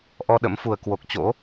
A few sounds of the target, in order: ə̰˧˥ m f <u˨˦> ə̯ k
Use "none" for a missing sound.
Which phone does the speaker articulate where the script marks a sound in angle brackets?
u˨˩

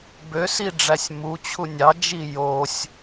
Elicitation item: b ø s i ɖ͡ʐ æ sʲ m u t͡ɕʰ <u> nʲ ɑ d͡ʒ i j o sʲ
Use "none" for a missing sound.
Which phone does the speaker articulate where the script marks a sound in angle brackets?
u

